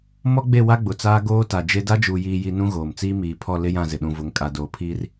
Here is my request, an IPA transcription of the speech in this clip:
m ɔ˦ ɡ͡b e˦˨ w a˦ ɡ͡b ʊ˨ t͡s aː˦ ɡ oː˦ t a˨ d͡ʒ e˦ d a˦ d͡ʒ uː˨ j iː˨ j i˨ n ũ˦ ɣ oː˨ m t͡s iː˦ m iː˨ pʰ ɔ˦˨ l ɪ˦ j ã˦˨ z ɪ˨ ɗ ũ˨ v ʊ˨ ŋ kʼ a˨ d oː˨ pʰ iː˦ r

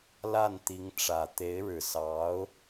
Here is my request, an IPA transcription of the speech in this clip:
l a˥˩ n t̪ i˧˥ ŋ ʈ͡ʂ ä˨˩ t̪ e˧˥ ɪ̯ ɻ ɻ̩˨˩ s ɑ˧˥ ʊ̯

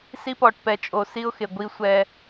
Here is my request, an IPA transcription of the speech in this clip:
s i˦ p ɔ˨ ʈ p ɛ˨ t͡ʃʼ o˨ s i˦ ʊ̯ x e˨ ɡʷ i˦ sʷ ɛ˦

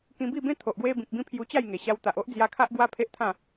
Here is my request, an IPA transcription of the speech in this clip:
k ĩ˧ b i˥˧ b ẽ˦ t̪ʰ o˨ ʔ ɡ w e˧ b ĩ˨ k̚ b ĩ˧ pʰ j u˧ t͡ɕ a˥˧ j ŋ e˨˩ ɕ a˧ w t̪ a˨ ʔ o˦ ʔ d͡z j a˧ kʰ a˦ ʔ ɡ w a˦ pʰ e˦ ʔ t̪ʰ ã˥˧

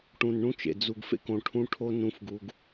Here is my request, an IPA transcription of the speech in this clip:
ʈ ũ˨ n ɳ ũ˦ t͡ʃ ḛ˨ d͡z u˨ ɡ f ḛ˦ k õ˨ ʈʰ ũ˦ ʈʰ o˦ n ũ˨˦ f ɡ u˨ ɡ

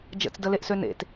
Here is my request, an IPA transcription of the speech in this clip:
d͡ʒ ə̰ t͡s d ə l e ʔ s ø n ḛ t

